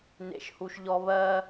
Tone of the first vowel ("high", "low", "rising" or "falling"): low